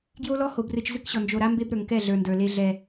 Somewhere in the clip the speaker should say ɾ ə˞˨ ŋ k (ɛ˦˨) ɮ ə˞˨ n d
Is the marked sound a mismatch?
no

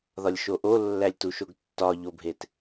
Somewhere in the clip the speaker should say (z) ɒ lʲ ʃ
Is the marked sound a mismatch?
yes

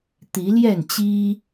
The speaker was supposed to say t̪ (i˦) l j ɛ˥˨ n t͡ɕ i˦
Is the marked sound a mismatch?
yes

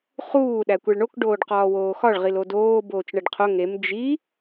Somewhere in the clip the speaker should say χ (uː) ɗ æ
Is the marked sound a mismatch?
no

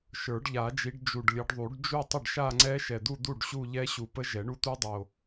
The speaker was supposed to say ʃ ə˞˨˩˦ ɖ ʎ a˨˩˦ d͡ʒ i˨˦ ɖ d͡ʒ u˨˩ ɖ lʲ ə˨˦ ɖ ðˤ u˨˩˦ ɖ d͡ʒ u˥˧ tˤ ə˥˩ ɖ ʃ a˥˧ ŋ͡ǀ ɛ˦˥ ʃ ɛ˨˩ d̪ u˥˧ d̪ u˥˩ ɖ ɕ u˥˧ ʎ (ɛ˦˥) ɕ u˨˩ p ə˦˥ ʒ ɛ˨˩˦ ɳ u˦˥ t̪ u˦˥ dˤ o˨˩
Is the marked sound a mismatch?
no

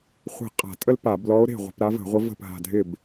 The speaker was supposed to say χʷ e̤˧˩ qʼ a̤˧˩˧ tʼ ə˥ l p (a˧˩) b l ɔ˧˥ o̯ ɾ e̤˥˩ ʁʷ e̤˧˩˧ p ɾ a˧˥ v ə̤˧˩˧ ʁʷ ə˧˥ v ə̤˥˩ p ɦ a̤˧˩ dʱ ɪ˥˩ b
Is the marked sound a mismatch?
yes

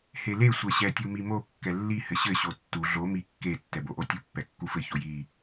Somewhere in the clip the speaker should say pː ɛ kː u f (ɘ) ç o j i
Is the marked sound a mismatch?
no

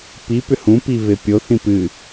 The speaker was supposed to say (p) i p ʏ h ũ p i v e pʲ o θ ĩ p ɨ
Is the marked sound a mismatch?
no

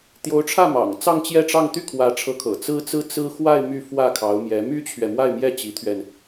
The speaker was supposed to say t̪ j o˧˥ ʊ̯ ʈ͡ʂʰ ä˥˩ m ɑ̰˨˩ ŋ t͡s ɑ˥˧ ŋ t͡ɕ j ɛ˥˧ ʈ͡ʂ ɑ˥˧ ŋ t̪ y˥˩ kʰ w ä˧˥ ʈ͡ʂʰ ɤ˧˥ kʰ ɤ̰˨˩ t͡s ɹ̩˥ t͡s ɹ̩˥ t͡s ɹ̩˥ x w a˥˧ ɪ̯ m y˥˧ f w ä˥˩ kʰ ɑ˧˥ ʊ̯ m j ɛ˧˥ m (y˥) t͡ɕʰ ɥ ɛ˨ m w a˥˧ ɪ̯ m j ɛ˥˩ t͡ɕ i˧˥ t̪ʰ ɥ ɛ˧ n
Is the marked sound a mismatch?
no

